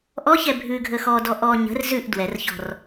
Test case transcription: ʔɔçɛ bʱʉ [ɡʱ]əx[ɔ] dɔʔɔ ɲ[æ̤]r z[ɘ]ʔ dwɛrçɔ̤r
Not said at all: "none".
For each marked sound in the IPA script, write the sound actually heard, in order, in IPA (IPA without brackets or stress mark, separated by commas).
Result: ɡʱ, ɔ, ə̤, ʉ